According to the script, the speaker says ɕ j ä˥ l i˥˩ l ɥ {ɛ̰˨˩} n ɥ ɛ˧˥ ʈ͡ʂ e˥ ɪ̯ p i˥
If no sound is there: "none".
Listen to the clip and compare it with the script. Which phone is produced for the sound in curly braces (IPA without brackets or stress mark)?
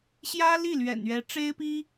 ɛ̰˨˩